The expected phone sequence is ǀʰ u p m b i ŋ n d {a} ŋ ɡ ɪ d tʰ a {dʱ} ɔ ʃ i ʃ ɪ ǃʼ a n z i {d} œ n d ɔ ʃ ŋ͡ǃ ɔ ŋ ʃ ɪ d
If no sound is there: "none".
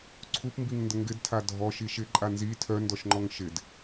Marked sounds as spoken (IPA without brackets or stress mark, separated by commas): ə, dʱ, tʰ